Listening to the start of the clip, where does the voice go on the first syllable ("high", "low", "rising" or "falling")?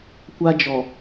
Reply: high